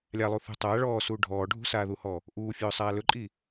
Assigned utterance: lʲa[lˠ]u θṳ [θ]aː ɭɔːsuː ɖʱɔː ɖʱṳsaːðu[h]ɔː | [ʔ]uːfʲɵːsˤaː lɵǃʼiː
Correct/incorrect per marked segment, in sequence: correct, incorrect, correct, correct

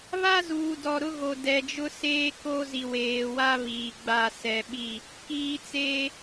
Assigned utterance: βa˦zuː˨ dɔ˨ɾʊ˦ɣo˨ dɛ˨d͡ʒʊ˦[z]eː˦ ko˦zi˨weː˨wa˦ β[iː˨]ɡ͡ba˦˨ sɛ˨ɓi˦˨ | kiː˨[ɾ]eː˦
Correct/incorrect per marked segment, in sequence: incorrect, correct, incorrect

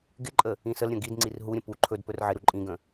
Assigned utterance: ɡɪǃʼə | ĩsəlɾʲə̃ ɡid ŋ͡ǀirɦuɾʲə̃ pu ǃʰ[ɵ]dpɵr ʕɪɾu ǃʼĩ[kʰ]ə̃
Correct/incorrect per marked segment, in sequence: correct, incorrect

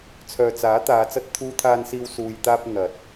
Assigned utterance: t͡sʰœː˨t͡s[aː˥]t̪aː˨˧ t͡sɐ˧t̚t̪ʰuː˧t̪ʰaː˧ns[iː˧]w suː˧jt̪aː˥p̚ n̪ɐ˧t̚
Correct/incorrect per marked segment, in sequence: incorrect, correct

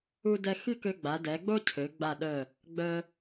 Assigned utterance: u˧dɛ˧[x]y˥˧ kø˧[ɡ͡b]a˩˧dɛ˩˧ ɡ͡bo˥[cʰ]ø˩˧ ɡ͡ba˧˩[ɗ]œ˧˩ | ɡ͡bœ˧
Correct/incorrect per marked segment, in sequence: correct, correct, correct, correct

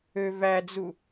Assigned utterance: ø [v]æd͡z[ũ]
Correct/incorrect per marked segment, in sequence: correct, incorrect

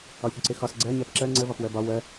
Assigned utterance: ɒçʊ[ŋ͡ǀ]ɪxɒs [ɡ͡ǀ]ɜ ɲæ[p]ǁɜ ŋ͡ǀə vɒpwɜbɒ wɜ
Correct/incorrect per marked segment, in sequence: incorrect, correct, correct

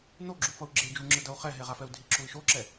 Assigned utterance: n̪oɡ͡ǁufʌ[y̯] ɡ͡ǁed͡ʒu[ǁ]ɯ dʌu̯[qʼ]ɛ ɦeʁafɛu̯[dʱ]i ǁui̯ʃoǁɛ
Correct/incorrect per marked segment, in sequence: incorrect, incorrect, incorrect, correct

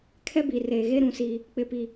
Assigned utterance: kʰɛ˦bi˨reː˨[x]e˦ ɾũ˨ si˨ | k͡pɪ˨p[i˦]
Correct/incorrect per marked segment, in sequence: incorrect, incorrect

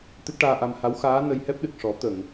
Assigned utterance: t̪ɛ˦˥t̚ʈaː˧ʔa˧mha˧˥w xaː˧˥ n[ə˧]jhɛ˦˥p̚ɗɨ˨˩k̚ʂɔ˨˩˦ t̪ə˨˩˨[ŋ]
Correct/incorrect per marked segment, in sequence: correct, correct

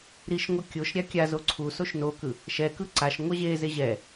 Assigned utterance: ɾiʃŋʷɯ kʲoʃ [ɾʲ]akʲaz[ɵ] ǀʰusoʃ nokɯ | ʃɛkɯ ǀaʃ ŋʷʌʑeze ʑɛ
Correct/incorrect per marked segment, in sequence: correct, incorrect

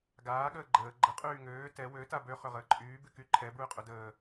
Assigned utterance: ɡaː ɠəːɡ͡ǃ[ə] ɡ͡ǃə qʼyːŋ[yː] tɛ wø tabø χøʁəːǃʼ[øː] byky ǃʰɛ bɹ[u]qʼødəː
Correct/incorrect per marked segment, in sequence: incorrect, incorrect, incorrect, incorrect

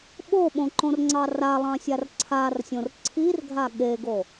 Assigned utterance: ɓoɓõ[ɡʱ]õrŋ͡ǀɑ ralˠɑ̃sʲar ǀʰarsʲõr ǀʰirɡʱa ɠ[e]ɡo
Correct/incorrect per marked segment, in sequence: incorrect, correct

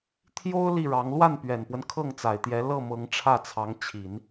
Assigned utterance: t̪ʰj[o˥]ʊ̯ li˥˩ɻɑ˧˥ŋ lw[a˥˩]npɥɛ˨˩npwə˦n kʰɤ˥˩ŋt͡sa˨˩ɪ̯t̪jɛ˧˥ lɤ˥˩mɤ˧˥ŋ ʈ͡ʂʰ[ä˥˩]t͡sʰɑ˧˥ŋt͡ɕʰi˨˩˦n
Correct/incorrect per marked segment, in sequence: correct, correct, correct

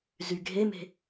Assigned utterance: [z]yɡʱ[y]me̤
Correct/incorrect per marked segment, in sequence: correct, incorrect

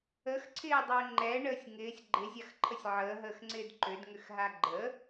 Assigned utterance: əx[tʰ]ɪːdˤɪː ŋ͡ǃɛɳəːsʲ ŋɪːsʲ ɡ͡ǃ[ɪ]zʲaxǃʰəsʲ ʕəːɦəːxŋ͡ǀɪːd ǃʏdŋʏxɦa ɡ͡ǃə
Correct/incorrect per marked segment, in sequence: incorrect, correct

